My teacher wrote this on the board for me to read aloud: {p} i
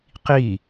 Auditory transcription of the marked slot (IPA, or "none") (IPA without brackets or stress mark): q